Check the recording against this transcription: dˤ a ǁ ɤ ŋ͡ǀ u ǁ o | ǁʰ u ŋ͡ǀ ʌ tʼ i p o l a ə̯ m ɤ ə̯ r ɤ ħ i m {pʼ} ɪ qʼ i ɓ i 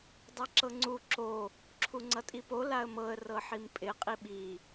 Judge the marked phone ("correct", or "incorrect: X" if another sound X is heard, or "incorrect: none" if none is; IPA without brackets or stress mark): correct